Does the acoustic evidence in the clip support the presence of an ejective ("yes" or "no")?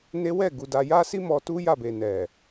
no